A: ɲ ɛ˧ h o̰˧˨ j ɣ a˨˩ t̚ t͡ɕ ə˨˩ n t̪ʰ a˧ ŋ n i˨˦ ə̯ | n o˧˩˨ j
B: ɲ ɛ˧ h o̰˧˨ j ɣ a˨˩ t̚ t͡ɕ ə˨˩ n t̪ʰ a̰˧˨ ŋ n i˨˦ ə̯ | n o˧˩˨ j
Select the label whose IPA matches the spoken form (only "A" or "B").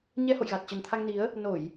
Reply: A